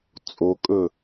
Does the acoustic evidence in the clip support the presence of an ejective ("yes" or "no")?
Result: yes